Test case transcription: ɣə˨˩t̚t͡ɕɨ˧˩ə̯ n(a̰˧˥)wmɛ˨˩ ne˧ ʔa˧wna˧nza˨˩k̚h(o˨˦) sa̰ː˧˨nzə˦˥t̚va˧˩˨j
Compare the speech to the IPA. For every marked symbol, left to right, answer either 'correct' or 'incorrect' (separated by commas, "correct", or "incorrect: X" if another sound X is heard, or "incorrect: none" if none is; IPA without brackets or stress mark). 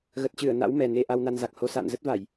correct, correct